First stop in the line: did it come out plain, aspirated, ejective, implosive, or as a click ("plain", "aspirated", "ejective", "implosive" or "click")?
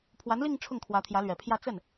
aspirated